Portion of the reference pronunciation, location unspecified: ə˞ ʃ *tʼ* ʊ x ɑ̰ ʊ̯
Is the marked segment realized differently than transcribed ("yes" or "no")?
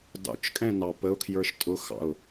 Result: no